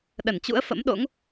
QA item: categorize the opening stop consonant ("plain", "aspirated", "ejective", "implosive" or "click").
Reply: implosive